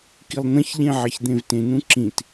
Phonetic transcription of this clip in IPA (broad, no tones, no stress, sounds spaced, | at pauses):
k i lˠ n̪ ɐ̃ ç ʎ ẽ ʕ ɐ ç d̪ ẽ v t ẽ n ũ ǁ ĩ t